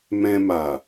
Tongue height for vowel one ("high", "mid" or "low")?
mid